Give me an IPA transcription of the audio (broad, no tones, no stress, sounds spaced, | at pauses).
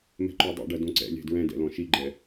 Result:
m ɛ̤ ǃ o dˤ ḭ ɖ ɐ d õ ǀ ɛ̰ lʲ ɛ̤ d ɹ ɛ̃ d ɛ̰ l ɔ̃ ʃ i ɡ͡ǃ ɛ